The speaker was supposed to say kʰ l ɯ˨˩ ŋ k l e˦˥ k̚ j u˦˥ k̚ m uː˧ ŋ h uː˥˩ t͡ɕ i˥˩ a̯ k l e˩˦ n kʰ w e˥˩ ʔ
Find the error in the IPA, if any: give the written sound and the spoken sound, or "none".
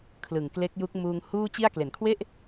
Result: none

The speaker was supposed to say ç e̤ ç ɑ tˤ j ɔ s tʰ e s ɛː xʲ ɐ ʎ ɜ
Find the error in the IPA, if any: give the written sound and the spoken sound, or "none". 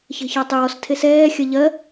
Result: none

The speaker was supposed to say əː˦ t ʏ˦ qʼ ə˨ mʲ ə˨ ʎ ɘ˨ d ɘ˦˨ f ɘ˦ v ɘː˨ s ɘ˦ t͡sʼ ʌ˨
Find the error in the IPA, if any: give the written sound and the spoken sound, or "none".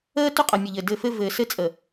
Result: ʌ˨ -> ə˨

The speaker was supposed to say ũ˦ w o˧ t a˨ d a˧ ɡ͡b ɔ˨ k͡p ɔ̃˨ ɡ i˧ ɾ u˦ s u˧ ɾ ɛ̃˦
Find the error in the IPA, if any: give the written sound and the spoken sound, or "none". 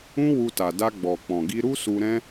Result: o˧ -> u˧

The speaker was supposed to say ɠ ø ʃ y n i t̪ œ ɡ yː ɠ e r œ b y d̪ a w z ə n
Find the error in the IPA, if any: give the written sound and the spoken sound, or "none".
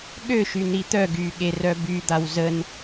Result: none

